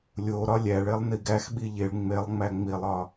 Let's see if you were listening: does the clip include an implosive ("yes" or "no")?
yes